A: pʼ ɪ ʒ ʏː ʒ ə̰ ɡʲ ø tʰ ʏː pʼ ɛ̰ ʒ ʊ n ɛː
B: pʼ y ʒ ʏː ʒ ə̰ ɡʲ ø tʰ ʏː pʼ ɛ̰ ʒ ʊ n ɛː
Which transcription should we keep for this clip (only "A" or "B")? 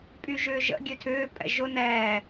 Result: B